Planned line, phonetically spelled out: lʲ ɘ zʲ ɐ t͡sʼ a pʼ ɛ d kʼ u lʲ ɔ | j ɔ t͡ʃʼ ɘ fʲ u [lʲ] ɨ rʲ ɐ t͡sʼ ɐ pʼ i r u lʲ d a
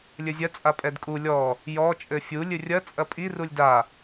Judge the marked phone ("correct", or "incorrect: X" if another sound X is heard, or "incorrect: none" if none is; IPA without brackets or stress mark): correct